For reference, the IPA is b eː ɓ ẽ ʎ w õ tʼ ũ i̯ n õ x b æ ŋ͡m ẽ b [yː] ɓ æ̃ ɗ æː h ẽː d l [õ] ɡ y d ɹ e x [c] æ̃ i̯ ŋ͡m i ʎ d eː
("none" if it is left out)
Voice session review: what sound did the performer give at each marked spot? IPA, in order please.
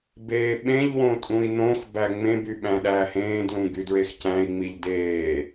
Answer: y, ũ, c

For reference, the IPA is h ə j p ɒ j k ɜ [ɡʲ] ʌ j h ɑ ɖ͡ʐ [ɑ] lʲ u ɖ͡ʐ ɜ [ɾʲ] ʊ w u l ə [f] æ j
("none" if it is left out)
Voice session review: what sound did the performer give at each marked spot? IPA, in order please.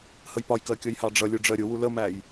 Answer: kʲ, ʌ, ɾʲ, m

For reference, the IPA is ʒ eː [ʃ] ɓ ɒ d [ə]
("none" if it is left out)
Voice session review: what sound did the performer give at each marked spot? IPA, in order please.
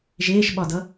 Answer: ʃ, ʌ

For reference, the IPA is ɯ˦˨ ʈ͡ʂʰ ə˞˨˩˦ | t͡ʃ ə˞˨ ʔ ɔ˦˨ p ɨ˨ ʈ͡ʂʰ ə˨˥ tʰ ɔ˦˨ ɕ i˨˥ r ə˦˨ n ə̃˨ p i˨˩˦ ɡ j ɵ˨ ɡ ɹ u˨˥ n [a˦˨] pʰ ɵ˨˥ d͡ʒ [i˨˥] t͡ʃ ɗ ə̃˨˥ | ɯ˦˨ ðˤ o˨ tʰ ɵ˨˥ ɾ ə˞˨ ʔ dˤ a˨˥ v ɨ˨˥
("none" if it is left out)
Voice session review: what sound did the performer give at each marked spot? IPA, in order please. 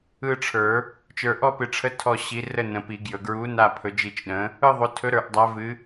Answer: a˦˨, i˦˨

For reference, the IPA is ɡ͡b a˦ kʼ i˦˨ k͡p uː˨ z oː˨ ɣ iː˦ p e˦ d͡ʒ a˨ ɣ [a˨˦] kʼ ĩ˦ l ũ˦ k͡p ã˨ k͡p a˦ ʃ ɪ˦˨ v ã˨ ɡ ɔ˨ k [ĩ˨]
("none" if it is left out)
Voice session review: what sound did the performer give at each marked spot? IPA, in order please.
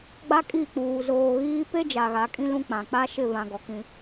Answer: a˨˦, ĩ˦

